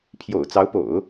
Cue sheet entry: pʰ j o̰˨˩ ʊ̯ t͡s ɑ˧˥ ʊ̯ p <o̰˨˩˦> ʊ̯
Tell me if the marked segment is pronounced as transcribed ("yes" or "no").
yes